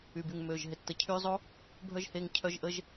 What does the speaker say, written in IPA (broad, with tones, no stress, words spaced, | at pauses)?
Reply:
y˨by˨ŋ mø˨ʒ ɦɪ˨tːə˨˦ cʰy˧zˤo˦ | bʱœ˦ʒhe˧ŋ cʰœ˦ʒʔə˦ʒ